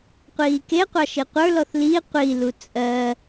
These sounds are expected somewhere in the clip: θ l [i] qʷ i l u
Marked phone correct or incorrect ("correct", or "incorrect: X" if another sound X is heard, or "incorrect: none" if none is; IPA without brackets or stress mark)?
correct